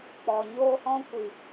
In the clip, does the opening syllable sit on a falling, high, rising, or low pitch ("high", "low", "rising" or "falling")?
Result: low